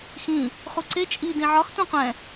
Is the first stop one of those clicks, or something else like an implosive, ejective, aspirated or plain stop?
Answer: click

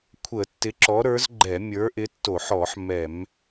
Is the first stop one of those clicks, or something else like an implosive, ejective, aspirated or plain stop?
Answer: aspirated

